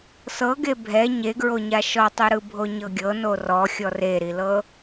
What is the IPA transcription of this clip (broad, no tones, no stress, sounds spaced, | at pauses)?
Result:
s ɤ ɡ e bʱ ɛ ɲ e ɡ ɹ o ɲ a ʃ ɔ tˤ u ɾ ɯ bʱ o ɲ ɤ ɡʲ ɤ n o r ɔ xʲ ɔ r e ɾ i l ɤ